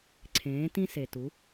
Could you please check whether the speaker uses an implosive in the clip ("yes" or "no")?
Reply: no